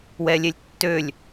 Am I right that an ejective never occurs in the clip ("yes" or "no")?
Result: yes